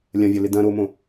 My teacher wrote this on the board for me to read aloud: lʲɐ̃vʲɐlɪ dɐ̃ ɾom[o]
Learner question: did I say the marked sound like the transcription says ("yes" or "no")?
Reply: no